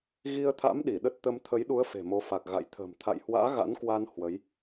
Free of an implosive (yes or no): no